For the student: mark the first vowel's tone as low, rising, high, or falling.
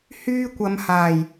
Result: high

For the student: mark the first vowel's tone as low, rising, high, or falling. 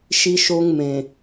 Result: high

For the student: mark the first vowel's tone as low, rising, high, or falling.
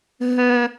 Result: high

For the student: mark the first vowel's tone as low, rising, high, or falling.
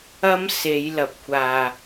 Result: high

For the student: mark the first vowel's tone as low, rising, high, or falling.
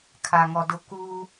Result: low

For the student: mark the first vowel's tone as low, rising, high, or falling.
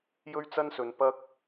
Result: high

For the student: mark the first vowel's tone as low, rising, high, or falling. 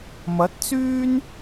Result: rising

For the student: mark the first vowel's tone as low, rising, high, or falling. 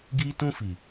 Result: high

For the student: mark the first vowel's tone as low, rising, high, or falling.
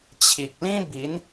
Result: low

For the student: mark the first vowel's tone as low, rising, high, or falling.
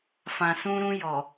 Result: low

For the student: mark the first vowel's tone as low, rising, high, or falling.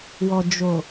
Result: low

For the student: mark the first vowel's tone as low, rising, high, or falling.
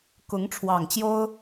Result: rising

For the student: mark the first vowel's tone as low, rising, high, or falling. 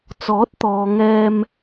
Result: rising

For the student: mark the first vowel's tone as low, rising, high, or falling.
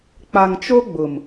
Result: low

